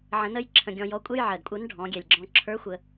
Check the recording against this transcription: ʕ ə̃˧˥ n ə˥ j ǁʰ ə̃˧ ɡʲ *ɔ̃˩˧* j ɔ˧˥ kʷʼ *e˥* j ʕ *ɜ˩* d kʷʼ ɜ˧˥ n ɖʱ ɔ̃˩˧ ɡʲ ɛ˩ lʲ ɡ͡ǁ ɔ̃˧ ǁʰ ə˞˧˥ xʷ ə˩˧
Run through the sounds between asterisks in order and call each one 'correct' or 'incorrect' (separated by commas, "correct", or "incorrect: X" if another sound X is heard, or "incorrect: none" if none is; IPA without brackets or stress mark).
incorrect: ɔ̃˧, incorrect: ɛ˥, correct